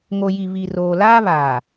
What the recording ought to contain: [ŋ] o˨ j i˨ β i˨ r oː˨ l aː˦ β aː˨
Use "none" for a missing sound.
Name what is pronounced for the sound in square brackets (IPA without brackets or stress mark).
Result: ŋ